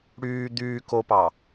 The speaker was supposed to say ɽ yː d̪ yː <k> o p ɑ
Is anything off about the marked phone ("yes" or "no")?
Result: no